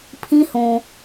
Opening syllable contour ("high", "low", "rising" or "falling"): high